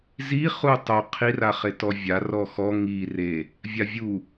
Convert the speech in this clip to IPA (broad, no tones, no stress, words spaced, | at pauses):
zi χutˤo qʰiraχetɔ vʲarɔ xɔ ŋi re | vʲavʲu